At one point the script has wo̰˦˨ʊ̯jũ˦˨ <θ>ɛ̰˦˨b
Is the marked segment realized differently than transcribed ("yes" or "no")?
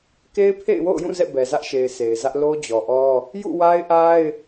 yes